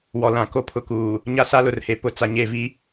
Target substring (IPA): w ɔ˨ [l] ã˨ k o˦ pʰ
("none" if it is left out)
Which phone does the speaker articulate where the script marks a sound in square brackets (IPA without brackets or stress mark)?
l